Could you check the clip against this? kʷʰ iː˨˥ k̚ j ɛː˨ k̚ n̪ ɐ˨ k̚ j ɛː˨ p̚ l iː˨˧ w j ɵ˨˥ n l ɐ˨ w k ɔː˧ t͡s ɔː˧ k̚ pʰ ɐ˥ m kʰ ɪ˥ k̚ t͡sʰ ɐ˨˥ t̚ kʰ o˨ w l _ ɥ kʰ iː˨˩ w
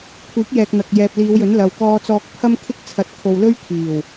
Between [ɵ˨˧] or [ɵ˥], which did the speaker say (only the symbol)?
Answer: ɵ˥